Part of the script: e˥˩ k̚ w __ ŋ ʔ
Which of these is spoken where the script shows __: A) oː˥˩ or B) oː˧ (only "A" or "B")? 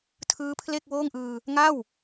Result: A